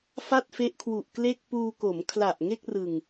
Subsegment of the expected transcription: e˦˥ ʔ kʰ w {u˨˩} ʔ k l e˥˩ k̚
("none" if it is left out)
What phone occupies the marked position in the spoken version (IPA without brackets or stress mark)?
u˨˩